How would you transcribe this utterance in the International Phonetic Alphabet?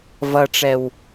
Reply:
vʌʈ͡ʂɛw

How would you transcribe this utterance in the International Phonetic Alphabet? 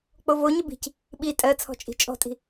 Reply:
k͡povoɲə bi̤c | ɓi tʼɜ t͡sʰɔ̤t͡ʃʼi̤t͡ʃʼɔ̤tʼi̤

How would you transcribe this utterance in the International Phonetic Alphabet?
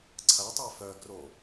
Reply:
ǀʰɐtˤɛ fœɡro

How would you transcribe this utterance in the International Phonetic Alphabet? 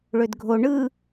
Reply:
ɭødɡʱo ɳɯ

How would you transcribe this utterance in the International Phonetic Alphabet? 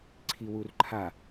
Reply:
ǀʰiwurǃʰa

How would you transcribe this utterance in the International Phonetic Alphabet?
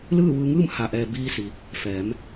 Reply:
lɯː˥˨ʋɯː˧ŋɯː˥˨m ha˩ʔɛː˩ biː˧si˩˧ | fɛː˩˧m

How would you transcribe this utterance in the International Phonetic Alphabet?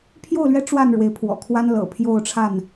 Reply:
pʰjo˥˨ʊ̯lɥɛ˦ ʈ͡ʂwa˥˨n ɻwe˨˦ɪ̯pʰwɔ̰˨˩kʰwa˦n lɤ̰˨˩pʰjo˥˨ʊ̯ʈ͡ʂʰa˥˨n

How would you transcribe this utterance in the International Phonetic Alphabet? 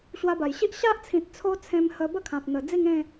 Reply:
ɕwa˧ba˨˩jɕi˦ʔ ɕa˦ʔt͡sʰĩ˨t̚ t͡sʰo˦t͡sʰẽ˧m hə˧bə˥˧kʰã˨p̚ n̪ə˨˩ d͡zi˥˧ŋẽ˥˧

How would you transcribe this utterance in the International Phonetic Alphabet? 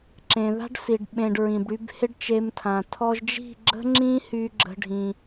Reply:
ǁẽ˨ða̤˦ɖsi˨ɖ ɓẽ˧ɖɹĩ˨bɽy˦b hɪ˦ɖt͡ʃe˧mtʰã˨ tʰɔ˧ʒd͡ʒi̤˦˨ ɡ͡ǁə̤˦ŋ͡ǁĩ˦hy˧ ɡ͡ǁə̤˦ɖʱĩ˧

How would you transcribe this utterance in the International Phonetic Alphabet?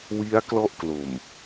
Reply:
wi˦˥a̯ klɔ˥˩ʔ klo˨˩m

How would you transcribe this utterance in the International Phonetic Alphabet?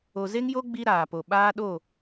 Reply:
o˨ze˦ŋjo˦ ɡ͡bi˦ɾaː˨po˨ ɓaː˦ɗo˦˨

